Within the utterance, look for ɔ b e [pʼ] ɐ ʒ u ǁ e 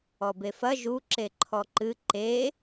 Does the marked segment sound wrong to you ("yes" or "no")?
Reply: yes